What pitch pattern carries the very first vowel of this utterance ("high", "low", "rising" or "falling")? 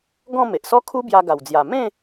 falling